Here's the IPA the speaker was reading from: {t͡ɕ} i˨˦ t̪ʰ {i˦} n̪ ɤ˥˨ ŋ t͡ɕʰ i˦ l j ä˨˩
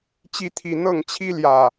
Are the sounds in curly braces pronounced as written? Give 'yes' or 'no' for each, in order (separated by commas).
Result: yes, no